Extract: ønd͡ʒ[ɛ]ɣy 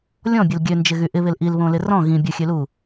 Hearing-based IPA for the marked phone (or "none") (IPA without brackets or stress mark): ɪ